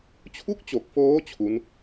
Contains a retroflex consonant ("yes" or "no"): no